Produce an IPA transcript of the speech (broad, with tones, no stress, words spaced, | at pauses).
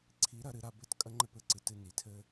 ǀʰi˨˦ɾɐ˧ ɾɨ˧ɾa˧ bɘ˦˨tkʼɐ˦ŋ͡ǃɘ˦pɘ˧ ǀɨ˨tɨ˧ ni˨tʰɘ˦